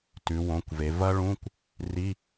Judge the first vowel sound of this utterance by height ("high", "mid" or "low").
high